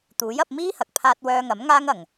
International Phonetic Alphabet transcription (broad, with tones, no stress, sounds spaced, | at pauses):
t̪ uː˨˥ j ɐ˧ p̚ m iː˥ h ɐ˨ k̚ pʰ aː˧ t̚ w œː˧ ŋ ɐ˨˥ m ŋ aː˥ ŋ ɐ˨ ŋ